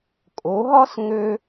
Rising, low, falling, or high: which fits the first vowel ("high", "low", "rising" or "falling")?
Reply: rising